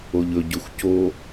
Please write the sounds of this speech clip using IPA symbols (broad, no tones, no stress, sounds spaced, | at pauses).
o ʎ ɵ ɟ ɵ xʷ c o